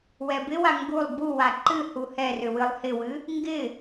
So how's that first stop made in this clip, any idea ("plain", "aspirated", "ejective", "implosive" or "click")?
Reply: plain